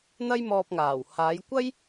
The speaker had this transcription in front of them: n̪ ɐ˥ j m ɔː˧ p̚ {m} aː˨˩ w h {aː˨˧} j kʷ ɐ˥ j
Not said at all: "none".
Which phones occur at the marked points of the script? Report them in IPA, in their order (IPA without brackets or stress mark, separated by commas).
ŋ, aː˨˧